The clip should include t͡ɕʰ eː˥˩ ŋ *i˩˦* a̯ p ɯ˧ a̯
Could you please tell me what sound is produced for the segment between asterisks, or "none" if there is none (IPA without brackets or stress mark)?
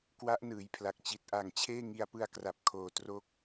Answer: i˧